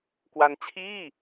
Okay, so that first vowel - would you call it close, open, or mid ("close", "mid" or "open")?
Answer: open